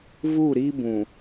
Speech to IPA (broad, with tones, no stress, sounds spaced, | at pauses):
v u˦˨ ɾ i˦ b ũ˨